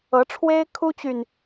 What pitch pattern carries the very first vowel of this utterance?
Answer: rising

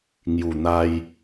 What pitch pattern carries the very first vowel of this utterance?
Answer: low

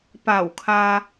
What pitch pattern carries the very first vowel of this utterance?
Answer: low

